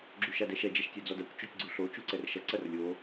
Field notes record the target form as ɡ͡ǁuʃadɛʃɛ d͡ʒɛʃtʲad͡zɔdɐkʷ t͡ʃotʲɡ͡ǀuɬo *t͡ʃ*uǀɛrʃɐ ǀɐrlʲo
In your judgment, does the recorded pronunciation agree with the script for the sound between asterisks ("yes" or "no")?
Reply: yes